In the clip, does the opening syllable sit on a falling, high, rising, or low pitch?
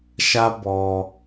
high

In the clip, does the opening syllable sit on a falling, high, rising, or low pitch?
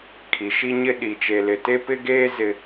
low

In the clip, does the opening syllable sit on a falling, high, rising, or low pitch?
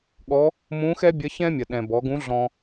rising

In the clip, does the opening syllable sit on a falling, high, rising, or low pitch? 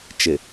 low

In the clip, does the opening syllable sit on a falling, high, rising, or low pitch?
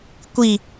falling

